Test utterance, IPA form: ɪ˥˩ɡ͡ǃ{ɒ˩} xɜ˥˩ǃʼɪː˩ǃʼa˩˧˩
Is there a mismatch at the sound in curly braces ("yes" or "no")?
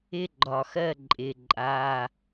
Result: no